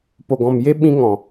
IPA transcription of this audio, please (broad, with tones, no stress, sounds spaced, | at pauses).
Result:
p o˨ ɡ ɔ̃˨ m j e˧ ɓ ĩ˧ ŋ ɔ̃˨